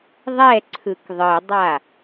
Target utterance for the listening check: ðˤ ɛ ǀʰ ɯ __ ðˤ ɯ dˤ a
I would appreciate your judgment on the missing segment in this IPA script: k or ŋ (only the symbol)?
k